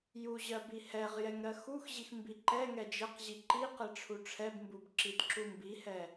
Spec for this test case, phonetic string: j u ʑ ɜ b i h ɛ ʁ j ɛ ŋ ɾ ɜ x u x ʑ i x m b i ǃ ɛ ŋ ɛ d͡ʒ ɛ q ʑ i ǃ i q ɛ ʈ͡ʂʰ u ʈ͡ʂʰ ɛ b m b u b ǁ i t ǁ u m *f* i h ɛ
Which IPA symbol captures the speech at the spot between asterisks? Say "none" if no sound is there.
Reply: b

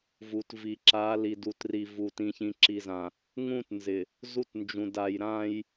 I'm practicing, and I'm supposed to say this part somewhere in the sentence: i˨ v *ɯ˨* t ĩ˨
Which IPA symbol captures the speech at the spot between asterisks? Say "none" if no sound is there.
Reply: u˨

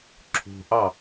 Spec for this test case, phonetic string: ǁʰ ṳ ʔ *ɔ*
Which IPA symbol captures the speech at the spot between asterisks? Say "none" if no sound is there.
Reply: ɑ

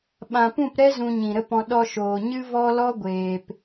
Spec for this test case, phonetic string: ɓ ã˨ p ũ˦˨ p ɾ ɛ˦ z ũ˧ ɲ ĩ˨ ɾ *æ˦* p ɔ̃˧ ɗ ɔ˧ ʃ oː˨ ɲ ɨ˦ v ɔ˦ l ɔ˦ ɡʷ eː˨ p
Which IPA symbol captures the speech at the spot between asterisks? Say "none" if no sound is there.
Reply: ə˦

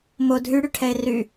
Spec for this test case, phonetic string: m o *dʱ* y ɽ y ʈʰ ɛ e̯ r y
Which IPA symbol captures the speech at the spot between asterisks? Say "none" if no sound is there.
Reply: dʱ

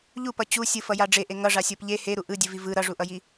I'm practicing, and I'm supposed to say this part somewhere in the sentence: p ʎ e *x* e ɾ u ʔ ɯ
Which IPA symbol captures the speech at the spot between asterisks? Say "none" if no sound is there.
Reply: h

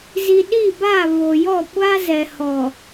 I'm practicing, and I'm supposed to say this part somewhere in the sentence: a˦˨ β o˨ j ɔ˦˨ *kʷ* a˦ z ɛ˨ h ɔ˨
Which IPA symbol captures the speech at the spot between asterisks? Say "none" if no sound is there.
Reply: kʷ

